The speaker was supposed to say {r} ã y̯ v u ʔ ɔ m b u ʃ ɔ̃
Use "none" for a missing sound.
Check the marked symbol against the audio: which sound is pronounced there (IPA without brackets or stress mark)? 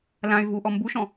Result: l